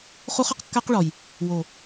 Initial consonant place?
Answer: uvular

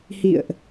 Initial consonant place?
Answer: glottal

